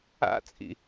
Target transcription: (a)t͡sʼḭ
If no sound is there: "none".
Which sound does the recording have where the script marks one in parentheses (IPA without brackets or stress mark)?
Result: a̰